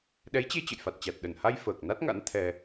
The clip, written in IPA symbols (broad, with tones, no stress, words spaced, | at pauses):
ɗɛ˨˦jt͡ɕe˧ t͡ɕə̰˧˨jfa˨˩t̚t͡ɕa˨˩t̚ ɗə˧˩nha˧j fəː˨˩k̚na˦˥t̚ŋa̰˧˥n t̪ʰɛ˧